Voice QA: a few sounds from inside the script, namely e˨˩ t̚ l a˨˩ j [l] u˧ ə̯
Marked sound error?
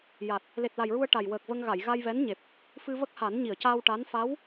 yes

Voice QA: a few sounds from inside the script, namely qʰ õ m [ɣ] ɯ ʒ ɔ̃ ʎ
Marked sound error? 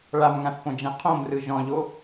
yes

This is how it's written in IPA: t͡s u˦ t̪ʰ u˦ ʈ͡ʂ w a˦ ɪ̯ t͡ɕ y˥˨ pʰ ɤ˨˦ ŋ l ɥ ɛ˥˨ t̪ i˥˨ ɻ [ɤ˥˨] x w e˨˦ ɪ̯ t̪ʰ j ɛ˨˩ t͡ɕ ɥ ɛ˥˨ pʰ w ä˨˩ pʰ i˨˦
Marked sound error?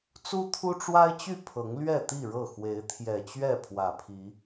no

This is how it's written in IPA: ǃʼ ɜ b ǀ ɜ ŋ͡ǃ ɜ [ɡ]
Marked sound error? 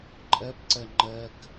yes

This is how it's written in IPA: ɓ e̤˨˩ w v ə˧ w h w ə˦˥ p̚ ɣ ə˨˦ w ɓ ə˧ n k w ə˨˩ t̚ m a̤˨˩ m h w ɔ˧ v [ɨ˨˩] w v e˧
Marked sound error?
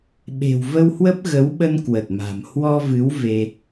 yes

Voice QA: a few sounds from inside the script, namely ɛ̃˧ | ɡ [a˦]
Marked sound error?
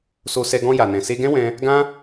yes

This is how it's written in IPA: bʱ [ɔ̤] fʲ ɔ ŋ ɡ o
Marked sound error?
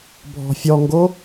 no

